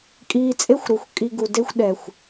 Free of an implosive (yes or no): no